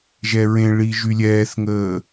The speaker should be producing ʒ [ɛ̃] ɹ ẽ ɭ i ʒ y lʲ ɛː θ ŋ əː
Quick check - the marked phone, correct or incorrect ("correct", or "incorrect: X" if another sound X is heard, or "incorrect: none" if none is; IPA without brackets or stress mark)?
incorrect: ɛ